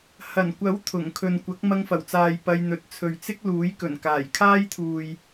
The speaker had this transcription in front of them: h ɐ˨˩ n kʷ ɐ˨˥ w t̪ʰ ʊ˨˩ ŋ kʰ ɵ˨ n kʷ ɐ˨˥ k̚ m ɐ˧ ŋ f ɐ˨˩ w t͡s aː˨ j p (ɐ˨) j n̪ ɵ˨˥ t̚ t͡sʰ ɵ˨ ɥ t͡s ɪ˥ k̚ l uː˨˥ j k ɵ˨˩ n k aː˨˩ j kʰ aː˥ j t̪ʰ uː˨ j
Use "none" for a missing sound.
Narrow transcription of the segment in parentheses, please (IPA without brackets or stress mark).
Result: ɐ˧